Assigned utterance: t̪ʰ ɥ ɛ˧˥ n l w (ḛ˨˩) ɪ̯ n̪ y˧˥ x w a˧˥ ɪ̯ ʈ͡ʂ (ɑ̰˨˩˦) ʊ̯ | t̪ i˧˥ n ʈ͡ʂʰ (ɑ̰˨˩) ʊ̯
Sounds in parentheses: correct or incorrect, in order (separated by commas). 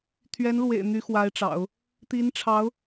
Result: correct, correct, incorrect